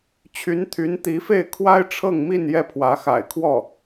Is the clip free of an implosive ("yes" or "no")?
yes